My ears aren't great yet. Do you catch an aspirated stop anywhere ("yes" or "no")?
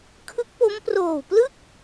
yes